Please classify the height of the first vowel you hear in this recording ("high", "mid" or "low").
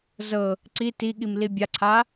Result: mid